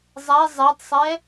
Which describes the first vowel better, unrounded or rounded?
unrounded